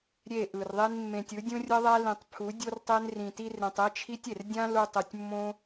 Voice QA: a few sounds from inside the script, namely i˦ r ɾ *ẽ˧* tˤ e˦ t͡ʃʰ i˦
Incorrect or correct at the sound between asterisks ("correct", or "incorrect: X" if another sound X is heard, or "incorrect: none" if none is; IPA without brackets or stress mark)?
correct